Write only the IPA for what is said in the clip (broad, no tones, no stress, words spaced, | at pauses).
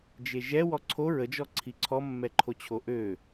d͡ʒeʒɛ wɔǀʰo ɹəd͡ʒɔǀʰi ǀʰɔmːɛǃʰot͡ɕʰo ʔø